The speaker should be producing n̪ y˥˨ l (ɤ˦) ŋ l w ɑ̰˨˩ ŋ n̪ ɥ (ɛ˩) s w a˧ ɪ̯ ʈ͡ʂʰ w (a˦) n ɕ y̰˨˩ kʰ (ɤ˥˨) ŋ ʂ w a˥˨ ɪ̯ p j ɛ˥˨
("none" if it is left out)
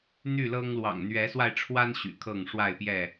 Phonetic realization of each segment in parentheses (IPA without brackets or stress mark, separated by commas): ɤ˦, ɛ˨˦, a˦, ɤ˥˨